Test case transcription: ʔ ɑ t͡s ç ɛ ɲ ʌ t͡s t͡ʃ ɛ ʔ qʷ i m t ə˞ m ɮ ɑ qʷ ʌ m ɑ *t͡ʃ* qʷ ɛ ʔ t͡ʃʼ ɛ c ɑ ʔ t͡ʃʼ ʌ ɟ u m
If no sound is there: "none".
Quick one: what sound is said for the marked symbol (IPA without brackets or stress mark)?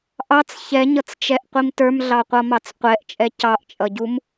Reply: t͡s